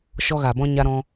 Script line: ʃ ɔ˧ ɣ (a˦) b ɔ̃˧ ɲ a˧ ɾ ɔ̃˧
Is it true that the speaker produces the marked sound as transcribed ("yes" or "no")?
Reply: no